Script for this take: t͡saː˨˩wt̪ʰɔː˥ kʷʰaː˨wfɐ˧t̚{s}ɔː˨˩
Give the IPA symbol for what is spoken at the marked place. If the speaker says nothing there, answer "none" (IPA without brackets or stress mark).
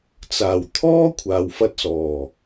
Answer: s